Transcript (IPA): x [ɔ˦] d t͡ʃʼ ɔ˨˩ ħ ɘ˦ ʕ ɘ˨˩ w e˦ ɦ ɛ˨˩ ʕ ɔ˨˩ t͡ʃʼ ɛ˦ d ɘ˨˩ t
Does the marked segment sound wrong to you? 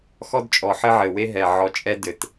no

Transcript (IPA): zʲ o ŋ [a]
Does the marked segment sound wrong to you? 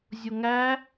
yes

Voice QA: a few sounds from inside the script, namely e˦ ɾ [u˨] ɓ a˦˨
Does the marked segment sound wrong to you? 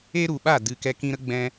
no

